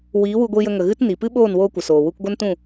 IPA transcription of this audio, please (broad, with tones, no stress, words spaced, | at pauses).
wiː˨˦wu˧ɡʷi˧jə˧ ŋə˨ɣɨ˦t ni˨ pɨ˦ɓoː˦˨nwoː˧ kʷə˨soː˨ wu˧kɡʷə˦ntũ˦˨